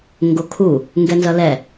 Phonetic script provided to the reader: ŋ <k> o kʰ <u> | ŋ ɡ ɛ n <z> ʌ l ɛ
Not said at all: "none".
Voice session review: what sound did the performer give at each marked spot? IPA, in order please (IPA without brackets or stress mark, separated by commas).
ɡ, u, z